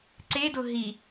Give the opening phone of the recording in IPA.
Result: ǀ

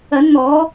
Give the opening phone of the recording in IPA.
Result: ɐ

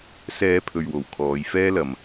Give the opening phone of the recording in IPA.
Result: s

